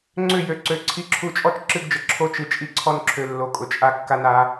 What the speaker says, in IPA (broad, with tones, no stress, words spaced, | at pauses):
ŋ͡ǀʏ˦˨jø˨ ǀø˨ ǀʰi˨ǁʰu˨t͡ʃʼɔ˦˨t͡ʃ ǁɨ˦ɡd͡ʒə˨ ǁʰo˦t͡ʃɨ˨ t͡ʃʼi˦ǀʰɔ˦nǁʰø˨ lːo˨˦kʼʊ˨t͡ʃʼa˦ kːa˦na˨˦